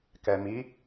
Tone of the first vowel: low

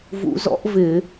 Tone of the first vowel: rising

